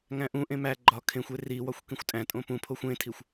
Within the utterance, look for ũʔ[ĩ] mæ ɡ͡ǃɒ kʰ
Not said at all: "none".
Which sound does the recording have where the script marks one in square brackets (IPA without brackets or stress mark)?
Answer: ẽ